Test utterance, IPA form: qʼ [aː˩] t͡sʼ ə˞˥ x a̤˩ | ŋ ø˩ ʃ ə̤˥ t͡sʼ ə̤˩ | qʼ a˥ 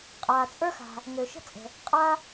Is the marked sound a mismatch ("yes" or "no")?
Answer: no